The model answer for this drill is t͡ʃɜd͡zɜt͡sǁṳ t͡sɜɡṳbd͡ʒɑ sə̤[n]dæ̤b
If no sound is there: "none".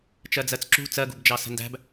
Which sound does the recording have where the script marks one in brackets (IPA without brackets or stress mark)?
n